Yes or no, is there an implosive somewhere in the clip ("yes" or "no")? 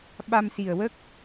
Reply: yes